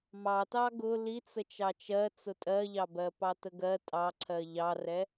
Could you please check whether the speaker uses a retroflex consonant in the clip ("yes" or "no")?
no